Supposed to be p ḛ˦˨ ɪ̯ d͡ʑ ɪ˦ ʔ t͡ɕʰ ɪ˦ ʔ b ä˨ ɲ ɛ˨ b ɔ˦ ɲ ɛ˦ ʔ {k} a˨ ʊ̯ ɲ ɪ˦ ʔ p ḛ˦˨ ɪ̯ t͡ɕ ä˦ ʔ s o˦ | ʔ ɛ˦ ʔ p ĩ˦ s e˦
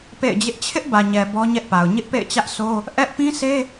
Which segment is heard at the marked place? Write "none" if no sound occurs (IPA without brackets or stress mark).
p